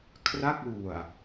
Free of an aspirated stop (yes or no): no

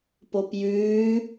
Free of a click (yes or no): yes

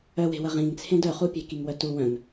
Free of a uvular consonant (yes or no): no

